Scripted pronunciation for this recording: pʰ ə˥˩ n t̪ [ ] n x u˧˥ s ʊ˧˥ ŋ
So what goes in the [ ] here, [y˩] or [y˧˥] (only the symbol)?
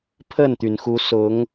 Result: y˩